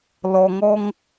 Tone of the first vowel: low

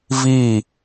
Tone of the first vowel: falling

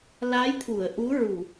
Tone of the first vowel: rising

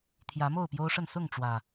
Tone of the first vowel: rising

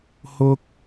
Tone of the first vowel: high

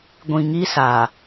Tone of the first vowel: low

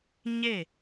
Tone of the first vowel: falling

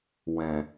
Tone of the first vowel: low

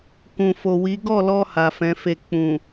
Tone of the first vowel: low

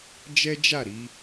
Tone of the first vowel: high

